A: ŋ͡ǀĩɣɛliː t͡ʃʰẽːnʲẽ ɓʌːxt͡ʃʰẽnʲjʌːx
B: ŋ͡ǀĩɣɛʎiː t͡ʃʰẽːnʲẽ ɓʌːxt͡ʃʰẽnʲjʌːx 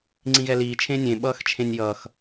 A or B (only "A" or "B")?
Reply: A